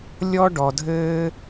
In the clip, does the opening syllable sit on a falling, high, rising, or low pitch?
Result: high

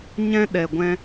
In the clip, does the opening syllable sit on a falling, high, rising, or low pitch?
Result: high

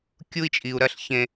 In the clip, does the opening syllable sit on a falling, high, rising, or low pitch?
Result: high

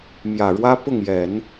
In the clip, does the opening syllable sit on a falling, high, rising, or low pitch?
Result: low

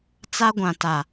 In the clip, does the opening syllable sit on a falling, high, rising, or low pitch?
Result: high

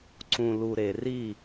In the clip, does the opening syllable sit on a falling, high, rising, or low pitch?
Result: low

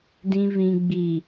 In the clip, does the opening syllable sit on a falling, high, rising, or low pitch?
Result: low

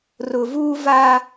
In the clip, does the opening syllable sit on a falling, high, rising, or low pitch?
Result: low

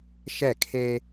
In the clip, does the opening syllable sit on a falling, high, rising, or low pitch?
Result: falling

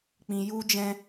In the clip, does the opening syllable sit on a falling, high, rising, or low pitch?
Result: low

